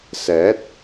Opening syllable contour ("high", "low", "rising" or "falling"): rising